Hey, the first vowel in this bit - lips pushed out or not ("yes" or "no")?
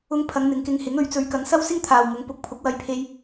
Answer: yes